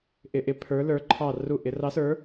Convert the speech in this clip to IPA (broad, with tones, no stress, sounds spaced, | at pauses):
ʔ ɪ˩˧˩ ʔ ɪ˩˧ pʰ ə˞˩˧ l ə˞˩˧ ǃʰ ɑ˧˩ r u˧˩ ʔ ɪ˩˧ r ɑ˨˥ s ə˞˨˥